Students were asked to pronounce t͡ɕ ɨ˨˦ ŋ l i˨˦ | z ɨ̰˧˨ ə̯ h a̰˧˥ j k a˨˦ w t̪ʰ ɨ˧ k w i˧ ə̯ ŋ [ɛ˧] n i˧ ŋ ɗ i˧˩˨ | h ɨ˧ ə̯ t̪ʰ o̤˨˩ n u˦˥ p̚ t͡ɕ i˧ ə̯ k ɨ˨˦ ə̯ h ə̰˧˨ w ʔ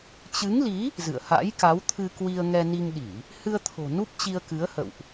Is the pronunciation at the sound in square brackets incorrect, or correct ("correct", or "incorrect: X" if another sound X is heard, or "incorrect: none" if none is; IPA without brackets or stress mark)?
correct